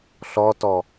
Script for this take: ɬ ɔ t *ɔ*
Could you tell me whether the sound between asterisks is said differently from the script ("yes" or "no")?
no